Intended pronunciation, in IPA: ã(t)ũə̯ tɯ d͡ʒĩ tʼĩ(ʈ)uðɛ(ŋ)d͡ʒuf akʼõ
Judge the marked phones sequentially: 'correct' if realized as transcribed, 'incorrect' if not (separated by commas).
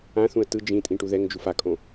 incorrect, correct, correct